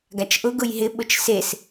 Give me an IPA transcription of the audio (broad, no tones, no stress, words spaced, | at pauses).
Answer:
ɡat͡ʃʔʊ ɡʊjɦɪ ɓʊt͡ʃses